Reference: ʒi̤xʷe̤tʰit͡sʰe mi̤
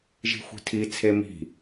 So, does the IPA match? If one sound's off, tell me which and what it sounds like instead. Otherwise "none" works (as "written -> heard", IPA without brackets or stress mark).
e̤ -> i̤